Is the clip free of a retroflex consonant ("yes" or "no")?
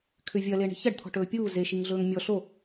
no